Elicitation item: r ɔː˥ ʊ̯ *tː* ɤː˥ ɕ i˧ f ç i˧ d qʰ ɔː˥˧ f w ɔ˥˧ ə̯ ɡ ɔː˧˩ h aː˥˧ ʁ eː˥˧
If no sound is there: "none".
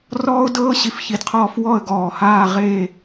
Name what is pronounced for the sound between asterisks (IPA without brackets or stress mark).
d